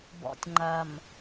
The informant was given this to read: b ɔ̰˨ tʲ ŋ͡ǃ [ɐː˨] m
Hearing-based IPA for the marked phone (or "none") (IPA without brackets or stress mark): ɐː˨